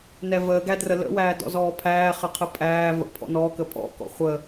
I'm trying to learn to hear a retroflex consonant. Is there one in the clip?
no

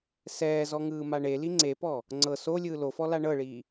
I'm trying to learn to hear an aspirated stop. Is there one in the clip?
no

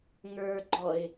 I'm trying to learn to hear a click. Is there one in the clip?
yes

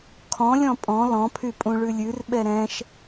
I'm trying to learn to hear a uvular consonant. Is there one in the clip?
no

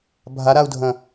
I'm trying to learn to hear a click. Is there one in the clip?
no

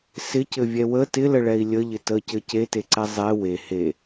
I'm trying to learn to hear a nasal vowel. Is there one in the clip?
no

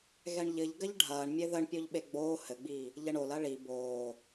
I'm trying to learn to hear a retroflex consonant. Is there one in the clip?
yes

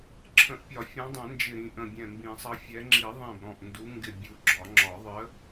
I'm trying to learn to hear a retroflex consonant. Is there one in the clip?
no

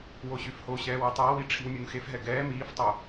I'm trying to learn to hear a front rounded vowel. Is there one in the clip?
yes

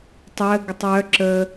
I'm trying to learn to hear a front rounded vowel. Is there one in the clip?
yes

